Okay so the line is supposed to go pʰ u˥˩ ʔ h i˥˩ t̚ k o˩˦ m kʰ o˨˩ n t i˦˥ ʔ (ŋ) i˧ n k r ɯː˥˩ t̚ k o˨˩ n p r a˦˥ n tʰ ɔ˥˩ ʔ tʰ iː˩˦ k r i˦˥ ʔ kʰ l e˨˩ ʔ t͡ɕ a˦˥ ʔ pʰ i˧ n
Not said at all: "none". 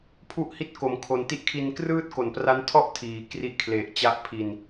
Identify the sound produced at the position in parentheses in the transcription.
kʰ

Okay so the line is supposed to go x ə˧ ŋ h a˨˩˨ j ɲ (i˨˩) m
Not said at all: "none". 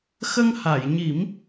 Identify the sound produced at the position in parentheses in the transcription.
i˨˩˦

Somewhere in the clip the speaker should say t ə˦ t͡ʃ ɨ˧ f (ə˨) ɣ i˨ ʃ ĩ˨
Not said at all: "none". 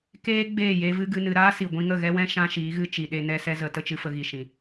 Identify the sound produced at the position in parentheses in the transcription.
ə˧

